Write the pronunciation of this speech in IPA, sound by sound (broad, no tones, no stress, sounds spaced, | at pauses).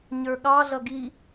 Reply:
ɲ ə˞ ɠ ɑ ɮ ʌ ɡ i